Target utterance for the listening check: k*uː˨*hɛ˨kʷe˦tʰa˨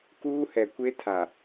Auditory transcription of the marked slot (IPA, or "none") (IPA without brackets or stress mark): uː˦